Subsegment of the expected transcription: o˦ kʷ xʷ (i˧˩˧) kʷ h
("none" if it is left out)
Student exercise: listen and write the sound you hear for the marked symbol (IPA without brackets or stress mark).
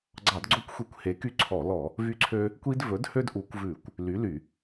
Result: i˧˩˧